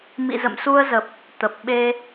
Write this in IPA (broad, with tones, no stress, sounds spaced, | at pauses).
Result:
m ḭ˧˨ z ə̰˧˨ m s u˧ ə̯ z ə˨˩ p̚ | t̪ ə˨˩ p̚ ɓ e˧